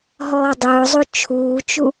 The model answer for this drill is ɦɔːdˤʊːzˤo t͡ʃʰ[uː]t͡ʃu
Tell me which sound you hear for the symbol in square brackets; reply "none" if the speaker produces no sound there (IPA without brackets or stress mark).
uː